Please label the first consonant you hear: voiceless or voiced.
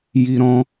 voiced